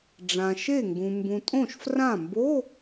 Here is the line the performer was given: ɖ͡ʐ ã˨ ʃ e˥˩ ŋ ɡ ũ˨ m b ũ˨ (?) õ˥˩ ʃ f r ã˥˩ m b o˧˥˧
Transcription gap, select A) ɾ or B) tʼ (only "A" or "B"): B